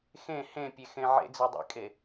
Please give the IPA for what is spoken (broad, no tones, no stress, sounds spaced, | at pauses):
x ẽ h ẽ pʲ e x ẽ ʕ ḛ d͡z ɛ dˤ ḛ kʼ e